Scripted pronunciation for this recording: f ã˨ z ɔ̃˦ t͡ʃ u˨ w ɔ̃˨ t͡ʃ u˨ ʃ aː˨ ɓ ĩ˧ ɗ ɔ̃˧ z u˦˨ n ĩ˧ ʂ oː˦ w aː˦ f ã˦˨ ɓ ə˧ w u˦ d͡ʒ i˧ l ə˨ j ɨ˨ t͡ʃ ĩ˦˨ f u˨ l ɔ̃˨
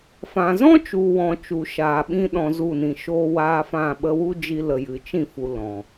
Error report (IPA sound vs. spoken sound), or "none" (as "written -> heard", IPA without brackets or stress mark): ʂ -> ʃ